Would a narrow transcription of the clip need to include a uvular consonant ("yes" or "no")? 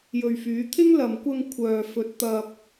no